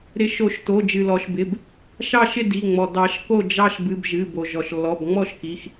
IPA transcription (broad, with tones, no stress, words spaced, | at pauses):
ɾɪ˨˩˦ʃo˨˩˦ʃto˩˧˩ d͡ʒɨ˩lɔ˩ʃ bɪ˩˧˩b | ʃɑ˥˨ʃɪ˥˨ di˩˧˩ŋ͡mɔ˩ dɑ˨˩˦ʃ ko˥˨d͡ʒɑ˦ʃ bɨ˩˧˩b ʒɨ˩˧˩bo˩ ʒɔ˩ʃlːɔ˩˧˩bŋ͡mɔ˥˨ʃ ki˩˧˩x